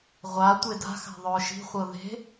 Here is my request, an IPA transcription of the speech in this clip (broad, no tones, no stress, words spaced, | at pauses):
ʁʷa tʷeda̤xa̤ ðˤʊːʃi̤χʷɤ ðe̤